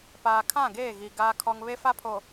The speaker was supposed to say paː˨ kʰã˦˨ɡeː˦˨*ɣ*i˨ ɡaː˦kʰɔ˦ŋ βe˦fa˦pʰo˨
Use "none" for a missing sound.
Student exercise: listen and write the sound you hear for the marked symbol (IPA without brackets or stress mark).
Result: ɣ